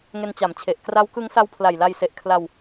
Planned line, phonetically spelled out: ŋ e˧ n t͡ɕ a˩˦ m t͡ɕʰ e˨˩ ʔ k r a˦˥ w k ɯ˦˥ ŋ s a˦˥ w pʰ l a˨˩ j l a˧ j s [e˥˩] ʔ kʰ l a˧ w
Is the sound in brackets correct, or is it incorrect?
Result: incorrect